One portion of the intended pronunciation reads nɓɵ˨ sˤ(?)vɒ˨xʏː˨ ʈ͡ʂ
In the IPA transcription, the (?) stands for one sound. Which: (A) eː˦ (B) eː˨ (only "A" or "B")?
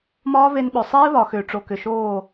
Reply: A